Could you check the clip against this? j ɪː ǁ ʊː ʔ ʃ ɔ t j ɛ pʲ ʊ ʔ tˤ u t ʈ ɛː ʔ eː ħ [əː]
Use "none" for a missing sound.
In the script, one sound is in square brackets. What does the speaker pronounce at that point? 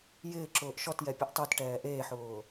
ʊː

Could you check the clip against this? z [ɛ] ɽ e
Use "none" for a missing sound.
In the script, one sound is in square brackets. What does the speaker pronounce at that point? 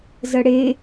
ə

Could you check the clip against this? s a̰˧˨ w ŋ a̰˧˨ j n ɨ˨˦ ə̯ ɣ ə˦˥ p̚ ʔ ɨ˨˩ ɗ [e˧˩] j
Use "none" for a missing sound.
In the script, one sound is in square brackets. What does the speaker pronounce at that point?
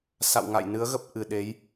e˨˦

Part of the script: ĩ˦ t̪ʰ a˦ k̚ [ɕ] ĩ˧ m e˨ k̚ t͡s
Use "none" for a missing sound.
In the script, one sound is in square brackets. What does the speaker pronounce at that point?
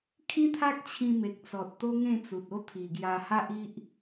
t͡ɕʰ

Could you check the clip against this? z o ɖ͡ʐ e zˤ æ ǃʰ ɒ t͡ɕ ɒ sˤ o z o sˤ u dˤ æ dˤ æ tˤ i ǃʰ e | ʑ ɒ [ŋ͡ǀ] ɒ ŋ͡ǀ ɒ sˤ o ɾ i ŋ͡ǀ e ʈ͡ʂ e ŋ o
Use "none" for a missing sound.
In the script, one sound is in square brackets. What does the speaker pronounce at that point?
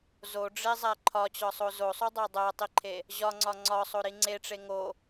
ŋ͡ǀ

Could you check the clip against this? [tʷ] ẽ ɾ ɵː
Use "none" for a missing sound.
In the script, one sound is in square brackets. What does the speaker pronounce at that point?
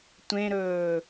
tʷ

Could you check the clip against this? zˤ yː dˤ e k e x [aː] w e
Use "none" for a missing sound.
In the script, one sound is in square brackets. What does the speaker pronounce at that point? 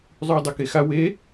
a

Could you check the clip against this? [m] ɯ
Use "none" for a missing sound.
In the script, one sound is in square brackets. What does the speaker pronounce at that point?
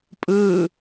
pʼ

